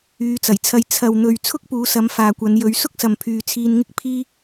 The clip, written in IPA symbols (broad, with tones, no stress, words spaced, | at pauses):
yː˨˧t͡sɐ˨˩jt͡sʰɐ˧j t͡sʰɐ˨wn̪ɵ˨ɥ t͡sʰʊ˥k̚puː˨˧sɐ˨˧m faː˨kʷɐ˨˧n jɵ˨˧ɥsʊ˥k̚sɐ˨m pʰyː˨t͡sʰiː˧nŋɪ˥k̚ pʰiː˥